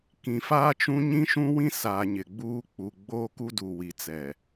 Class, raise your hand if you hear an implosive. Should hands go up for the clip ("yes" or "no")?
no